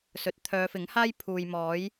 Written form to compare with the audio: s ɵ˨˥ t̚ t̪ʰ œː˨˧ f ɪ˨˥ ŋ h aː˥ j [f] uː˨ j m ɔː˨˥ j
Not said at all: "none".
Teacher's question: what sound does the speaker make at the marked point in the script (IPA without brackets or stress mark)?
pʰ